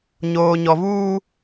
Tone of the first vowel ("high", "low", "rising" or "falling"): low